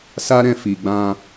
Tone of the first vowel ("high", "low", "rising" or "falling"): high